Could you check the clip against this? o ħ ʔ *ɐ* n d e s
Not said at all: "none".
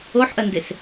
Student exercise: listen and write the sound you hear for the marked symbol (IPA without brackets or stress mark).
ɐ